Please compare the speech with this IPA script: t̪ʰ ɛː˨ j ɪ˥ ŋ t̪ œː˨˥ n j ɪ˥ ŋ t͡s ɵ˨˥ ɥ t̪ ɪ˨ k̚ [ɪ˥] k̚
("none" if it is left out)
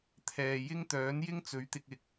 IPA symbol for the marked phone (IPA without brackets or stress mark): ɪ˨